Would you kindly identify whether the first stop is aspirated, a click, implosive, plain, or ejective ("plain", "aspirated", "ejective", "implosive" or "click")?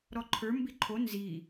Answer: click